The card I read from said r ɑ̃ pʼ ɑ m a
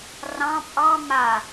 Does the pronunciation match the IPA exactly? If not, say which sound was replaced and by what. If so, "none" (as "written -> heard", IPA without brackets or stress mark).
none